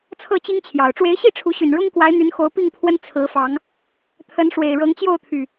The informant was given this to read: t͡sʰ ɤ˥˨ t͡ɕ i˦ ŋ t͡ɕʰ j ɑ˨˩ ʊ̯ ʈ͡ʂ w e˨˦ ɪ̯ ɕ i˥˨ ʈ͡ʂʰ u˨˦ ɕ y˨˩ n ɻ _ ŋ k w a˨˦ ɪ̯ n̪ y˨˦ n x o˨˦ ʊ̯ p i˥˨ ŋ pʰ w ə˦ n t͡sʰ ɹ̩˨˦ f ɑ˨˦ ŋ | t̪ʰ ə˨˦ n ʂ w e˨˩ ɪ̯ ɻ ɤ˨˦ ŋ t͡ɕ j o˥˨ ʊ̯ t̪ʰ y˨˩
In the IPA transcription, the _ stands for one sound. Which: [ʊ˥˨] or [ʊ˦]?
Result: ʊ˦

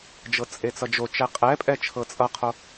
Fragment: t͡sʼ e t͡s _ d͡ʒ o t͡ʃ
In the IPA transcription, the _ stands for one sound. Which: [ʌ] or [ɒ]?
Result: ʌ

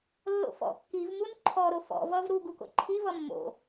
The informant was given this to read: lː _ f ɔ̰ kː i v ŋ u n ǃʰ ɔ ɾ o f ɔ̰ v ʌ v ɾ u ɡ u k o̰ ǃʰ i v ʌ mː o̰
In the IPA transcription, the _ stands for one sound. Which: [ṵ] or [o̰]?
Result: o̰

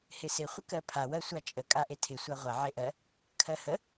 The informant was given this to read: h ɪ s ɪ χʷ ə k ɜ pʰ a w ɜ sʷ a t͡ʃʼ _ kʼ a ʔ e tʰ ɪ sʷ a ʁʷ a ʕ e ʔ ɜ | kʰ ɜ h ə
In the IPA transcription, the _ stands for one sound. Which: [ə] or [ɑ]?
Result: ə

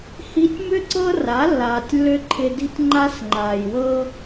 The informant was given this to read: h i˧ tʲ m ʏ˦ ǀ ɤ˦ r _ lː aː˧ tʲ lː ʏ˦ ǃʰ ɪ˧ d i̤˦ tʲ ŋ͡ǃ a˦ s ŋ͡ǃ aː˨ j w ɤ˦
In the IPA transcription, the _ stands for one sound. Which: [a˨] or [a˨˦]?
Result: a˨˦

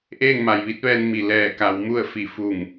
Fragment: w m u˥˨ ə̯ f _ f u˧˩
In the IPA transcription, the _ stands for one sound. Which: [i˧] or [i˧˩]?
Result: i˧˩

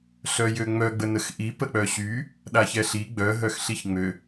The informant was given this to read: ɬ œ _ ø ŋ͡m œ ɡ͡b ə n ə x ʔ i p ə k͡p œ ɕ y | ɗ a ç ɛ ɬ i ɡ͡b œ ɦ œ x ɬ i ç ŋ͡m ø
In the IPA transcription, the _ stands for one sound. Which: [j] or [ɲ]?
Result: j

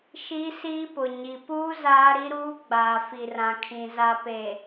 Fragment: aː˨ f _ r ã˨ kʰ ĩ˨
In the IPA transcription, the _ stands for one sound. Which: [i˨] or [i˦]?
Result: i˨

